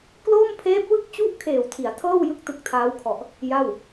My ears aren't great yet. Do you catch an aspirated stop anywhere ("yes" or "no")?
yes